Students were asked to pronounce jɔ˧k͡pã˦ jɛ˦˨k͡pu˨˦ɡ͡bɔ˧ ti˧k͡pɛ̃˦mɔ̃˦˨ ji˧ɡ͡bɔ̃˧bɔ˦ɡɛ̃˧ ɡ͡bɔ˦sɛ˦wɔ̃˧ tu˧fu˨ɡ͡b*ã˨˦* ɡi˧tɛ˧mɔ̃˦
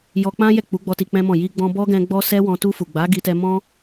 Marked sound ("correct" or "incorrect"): incorrect